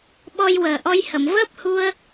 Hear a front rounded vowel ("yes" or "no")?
no